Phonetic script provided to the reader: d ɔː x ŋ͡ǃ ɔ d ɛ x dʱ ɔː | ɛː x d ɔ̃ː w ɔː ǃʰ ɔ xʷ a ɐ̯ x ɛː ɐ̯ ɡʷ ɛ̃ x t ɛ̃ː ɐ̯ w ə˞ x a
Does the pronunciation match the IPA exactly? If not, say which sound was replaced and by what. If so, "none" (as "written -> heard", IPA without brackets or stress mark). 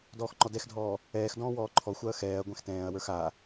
none